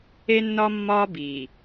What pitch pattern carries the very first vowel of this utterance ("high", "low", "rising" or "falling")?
high